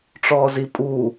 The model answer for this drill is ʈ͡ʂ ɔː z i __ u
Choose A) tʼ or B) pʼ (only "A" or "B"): B